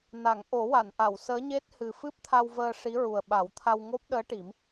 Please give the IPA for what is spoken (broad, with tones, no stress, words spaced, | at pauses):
na˨˩˨ŋ ʔo˨˩˦wa˨˩˨nʔa˨˩˨w səː˧˥ɲe˦˥t̚hɨ˨˩ fɨ˦˥p̚t̪ʰa˧wvəː˧ ʂi˧˥ɹu˨˩ə̯ ɓa˨˩˦wt̪ʰa˧w ŋo˦˥p̚ ɗəː˧˥ʈi˨˩˦m